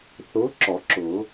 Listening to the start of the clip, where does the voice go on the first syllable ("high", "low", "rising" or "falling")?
rising